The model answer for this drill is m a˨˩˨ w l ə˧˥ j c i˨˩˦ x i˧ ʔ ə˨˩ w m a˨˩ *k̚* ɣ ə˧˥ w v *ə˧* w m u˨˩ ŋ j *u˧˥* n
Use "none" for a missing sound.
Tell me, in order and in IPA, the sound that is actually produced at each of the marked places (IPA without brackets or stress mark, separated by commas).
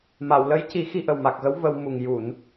k̚, ə˧, u˨˩˨